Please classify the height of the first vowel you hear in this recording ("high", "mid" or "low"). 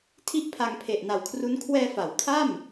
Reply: high